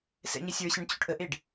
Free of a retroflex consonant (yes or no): no